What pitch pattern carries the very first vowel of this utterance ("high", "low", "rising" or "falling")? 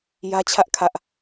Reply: high